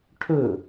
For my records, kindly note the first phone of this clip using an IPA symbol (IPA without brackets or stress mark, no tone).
ʈʰ